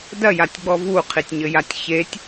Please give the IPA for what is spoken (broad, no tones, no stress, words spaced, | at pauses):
dɐjatʲɡ͡bɔ vuqʰitʲɲɘjatʲ çetʲ